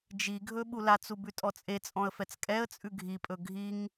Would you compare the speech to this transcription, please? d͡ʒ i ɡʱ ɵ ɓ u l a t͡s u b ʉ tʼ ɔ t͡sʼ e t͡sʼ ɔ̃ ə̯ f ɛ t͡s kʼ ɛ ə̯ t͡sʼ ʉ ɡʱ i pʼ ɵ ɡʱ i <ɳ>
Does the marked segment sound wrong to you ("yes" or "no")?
yes